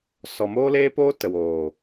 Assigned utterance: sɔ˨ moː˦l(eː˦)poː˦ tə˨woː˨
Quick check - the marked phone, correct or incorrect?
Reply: correct